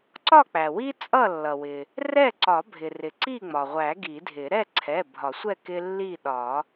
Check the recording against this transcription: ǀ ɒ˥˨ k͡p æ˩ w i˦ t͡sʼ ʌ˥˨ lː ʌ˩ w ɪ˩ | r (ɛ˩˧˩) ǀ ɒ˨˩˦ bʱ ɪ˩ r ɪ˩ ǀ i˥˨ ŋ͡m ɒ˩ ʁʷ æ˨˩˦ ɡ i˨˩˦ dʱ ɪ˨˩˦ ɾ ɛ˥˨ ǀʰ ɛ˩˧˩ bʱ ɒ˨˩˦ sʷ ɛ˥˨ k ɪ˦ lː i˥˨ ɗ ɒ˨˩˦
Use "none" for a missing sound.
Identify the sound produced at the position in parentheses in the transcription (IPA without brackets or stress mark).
ɛ˥˨